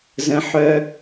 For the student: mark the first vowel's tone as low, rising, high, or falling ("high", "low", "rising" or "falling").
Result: high